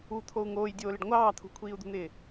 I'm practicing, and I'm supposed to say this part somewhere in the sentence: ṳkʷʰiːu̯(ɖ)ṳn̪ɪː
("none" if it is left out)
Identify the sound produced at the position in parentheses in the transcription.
d̪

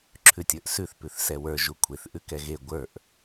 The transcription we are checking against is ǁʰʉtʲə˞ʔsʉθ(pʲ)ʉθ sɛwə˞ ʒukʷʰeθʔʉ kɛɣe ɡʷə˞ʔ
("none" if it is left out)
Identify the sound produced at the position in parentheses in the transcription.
p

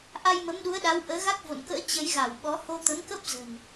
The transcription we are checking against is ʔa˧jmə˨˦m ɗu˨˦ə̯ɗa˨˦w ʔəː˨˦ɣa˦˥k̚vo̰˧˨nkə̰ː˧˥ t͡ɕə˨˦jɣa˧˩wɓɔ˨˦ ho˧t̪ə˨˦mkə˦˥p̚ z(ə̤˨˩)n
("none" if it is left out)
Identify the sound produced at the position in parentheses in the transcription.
ə̤˨˩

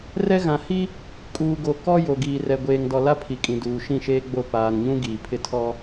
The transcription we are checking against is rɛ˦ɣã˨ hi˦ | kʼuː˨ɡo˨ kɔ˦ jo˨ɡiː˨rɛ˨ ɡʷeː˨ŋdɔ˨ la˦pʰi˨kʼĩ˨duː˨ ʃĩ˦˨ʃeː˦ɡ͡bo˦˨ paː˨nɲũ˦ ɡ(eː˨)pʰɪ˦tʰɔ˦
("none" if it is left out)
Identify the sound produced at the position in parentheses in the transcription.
iː˨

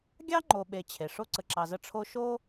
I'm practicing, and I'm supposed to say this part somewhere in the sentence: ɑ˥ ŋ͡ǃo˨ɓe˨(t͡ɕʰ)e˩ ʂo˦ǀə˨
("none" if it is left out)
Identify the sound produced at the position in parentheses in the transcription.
t͡ɕʰ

